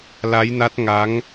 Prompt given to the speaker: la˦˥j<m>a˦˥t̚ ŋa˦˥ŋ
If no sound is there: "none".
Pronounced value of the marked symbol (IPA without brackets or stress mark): n